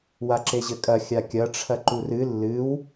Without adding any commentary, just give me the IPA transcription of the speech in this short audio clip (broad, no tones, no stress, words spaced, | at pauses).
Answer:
waǁeʑɘkʼɐ xʲakʲɐ ʈ͡ʂʰɐǃurɨ lːɨw